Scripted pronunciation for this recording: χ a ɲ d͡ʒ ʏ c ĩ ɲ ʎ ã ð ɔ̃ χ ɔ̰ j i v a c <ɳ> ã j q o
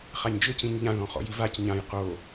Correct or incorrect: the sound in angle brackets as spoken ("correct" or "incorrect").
incorrect